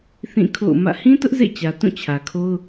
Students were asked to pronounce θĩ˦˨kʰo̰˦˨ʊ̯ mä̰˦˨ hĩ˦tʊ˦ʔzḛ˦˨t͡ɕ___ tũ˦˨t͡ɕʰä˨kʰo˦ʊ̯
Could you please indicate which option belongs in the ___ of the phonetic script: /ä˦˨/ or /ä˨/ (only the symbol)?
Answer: ä˨